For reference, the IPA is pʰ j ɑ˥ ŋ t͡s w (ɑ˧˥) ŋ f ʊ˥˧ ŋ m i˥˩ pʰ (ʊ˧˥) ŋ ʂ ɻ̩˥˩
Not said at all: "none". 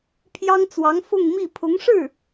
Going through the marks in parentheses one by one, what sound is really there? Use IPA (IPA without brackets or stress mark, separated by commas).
ɑ˧˥, ʊ˧˥